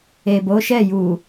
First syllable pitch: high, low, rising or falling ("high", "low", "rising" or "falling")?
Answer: low